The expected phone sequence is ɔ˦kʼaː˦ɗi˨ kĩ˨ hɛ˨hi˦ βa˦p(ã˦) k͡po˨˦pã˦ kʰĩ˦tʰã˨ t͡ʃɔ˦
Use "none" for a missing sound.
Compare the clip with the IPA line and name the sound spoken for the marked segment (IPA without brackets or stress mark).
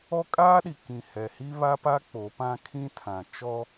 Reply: a˦